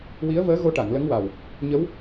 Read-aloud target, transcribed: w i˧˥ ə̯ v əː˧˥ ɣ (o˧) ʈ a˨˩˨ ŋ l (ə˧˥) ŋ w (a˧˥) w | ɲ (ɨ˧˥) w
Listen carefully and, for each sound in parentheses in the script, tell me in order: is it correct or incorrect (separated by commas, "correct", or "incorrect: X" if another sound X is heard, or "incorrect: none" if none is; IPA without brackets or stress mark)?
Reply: correct, correct, incorrect: a˨˩, incorrect: ə˧˥